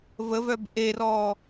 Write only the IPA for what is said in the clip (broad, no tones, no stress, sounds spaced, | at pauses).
v ə v œ b ʔ e r ɔ